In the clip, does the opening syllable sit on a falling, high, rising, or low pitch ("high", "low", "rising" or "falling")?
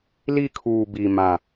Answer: falling